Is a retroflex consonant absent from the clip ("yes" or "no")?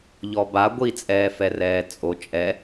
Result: yes